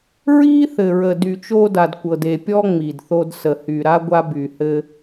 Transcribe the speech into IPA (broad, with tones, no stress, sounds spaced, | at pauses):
ɹ iː˦ θ ɘ˨ ɹ ə˨ d y˨ t͡ʃ oː˦ d a˨ d kʷ ɤ˨ d e˨ pʲ ɔ˦ ŋ͡m i˨ d θ o˦ d s ə˨ h y˨ ɾ a˦ ɡʷ a˦ b y˨ h ɘ˦